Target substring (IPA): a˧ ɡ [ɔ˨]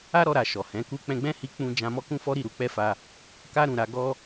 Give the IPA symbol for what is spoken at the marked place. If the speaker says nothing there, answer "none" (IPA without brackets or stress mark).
ɔ˦